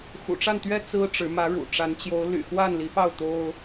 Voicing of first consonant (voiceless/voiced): voiceless